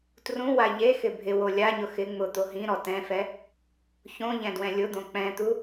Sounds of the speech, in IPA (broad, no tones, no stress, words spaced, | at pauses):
trũwa ʎexɪ bʱɪwo lʲaɲʊ xɪ ŋ͡mʊt̪o ɦĩ ɾɔtɛ̃fɛ | çõ ʎɛ̃dwɛ̃lʲʊd̪õ k͡pɛ̃t̪u